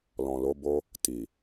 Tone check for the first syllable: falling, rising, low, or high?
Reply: low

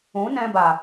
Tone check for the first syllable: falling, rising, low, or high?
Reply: rising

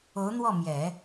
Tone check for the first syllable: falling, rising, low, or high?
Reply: rising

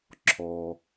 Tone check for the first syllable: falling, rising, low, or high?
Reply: low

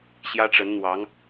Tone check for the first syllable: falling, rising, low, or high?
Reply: high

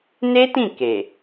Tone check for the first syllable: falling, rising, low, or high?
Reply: high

